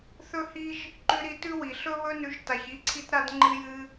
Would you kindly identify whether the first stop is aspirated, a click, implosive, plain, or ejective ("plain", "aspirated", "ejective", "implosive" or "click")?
click